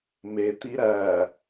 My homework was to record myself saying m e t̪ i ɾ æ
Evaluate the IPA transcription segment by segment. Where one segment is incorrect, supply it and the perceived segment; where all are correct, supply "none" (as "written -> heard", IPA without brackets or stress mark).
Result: none